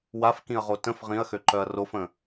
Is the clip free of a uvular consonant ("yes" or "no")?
no